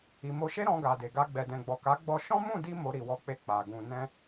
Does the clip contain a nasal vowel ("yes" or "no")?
yes